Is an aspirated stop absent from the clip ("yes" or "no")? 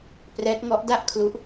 no